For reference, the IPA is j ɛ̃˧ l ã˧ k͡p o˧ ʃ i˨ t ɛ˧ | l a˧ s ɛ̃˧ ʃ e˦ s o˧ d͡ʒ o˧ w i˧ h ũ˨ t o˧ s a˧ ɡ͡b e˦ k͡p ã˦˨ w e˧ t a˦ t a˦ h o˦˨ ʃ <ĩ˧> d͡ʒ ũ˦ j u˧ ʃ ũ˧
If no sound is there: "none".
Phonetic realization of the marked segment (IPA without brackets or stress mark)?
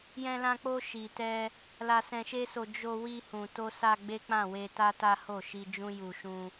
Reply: i˧